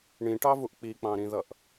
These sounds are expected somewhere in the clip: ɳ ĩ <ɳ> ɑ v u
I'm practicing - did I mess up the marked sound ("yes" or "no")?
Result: yes